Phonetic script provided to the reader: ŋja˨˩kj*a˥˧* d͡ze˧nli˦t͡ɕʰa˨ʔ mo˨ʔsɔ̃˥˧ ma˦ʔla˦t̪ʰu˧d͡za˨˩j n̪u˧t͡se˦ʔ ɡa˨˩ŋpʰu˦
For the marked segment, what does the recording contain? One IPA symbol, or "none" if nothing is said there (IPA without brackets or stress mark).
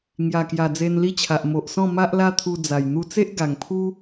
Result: a˨˩